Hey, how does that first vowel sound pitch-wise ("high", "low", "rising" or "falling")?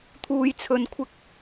high